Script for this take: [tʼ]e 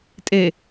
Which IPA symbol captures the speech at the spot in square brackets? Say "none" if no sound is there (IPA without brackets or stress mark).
tʼ